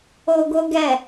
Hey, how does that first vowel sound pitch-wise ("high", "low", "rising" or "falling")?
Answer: high